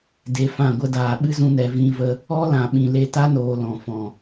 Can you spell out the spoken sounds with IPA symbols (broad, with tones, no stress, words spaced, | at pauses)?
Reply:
de˧fã˦˨ɡʷə˦ daː˨ɓɨ˦zũ˧nɛ˨ vĩ˧və˧ | ɔ˦lã˨ ɓĩ˨le˧ta˦noː˨ lɔ̃˨fɔ̃˨